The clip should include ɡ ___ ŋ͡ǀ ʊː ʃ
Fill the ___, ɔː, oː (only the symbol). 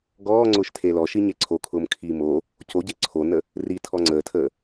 ɔː